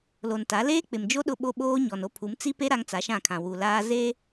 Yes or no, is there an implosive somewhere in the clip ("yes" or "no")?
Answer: yes